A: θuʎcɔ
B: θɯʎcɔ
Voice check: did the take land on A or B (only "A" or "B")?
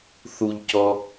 A